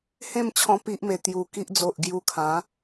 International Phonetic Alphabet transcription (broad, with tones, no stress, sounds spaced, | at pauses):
h ẽ˥˧ m t͡ɕʰ ɔ̃˧ p i˦ ʔ m e˧ t̪ j u˨˩ k i˦ ʔ d͡z o˨ ʔ ɡ j u˧ kʰ ã˨˦